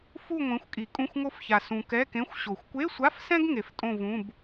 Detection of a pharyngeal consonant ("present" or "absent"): absent